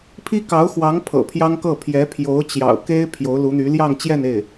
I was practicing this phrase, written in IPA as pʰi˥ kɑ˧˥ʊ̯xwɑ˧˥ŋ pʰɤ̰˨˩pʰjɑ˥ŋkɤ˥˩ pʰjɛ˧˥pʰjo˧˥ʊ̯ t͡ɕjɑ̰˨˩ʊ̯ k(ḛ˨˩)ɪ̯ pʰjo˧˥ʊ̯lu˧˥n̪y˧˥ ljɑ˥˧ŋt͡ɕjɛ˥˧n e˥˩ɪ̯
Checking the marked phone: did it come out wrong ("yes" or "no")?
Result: yes